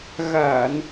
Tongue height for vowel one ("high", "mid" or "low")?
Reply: low